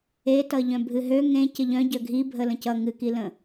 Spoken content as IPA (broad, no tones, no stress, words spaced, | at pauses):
etʌ ʎœ̃bʱɨɦø ŋẽ cəʎœ̃ɟœ ɡʱibʱə lə̃cʌ ŋɨkilə̃